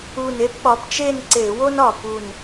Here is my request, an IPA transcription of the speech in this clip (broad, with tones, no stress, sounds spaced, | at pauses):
u˧˩ n e˥˨ p ɓ ɒ˨˦ p t͡ʃ e˥˨ n ǀ e˧˩˧ w o˥ n ɒ˧˩ p u˧˩ n